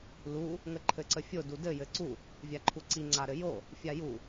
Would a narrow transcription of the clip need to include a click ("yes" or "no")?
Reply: yes